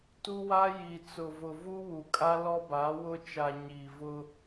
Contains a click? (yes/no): no